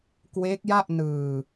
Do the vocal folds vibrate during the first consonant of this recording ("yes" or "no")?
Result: no